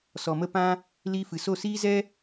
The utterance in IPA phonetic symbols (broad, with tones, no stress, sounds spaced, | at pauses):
s ɔ˨ m ə˧ p ã˧ | l iː˧ f ɨ˨ s o˦˨ s iː˦ z ɛ˦